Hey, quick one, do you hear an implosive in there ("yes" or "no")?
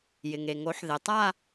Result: no